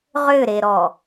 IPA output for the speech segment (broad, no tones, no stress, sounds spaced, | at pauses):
ʁ ʏ ɾ e ɾ ɔ